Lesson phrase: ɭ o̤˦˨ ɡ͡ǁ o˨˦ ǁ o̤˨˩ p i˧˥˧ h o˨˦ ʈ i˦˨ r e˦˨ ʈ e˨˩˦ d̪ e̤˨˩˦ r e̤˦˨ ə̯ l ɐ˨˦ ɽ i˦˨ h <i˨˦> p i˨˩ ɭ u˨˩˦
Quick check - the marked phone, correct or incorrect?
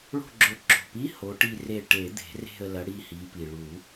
correct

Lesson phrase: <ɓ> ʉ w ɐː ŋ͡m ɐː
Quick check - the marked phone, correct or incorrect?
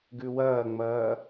incorrect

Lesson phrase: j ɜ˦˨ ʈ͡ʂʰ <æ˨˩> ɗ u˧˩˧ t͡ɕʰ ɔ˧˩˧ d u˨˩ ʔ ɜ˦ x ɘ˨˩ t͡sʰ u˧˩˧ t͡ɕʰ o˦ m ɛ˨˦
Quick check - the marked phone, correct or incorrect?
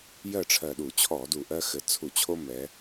incorrect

